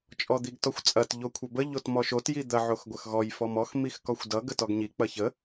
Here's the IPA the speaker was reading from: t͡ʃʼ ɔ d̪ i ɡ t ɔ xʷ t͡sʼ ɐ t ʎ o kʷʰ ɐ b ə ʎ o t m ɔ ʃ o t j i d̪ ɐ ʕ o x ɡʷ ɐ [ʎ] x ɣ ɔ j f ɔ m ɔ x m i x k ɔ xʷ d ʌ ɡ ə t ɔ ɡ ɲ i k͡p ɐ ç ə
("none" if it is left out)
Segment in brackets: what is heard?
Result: none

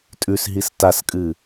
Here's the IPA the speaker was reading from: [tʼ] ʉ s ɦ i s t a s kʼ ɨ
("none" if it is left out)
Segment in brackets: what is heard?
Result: tʼ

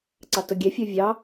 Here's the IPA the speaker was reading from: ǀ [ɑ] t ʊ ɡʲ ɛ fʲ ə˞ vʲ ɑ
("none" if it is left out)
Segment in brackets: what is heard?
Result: ɑ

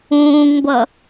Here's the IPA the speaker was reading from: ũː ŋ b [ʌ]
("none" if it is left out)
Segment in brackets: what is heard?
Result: ʌ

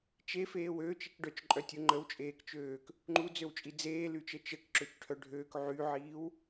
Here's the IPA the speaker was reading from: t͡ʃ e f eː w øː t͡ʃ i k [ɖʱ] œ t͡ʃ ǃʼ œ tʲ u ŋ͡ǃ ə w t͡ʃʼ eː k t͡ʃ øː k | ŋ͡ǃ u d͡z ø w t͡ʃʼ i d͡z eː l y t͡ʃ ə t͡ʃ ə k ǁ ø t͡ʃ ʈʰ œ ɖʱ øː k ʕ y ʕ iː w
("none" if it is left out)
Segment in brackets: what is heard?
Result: ɖ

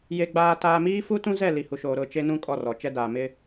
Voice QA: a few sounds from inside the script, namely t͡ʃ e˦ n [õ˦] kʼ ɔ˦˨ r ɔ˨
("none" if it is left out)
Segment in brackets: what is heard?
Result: ũ˦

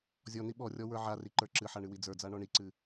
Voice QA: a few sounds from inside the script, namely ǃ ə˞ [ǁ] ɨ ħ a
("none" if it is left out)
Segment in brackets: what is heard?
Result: ǁ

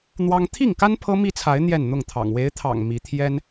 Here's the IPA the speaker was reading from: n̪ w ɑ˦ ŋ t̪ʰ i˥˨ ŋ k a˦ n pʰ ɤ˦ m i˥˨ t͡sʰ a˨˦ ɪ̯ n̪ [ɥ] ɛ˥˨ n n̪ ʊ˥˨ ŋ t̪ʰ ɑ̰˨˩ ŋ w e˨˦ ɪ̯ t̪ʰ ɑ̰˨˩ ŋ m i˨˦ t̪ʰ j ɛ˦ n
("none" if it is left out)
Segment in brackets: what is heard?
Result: j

